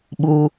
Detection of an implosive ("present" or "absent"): present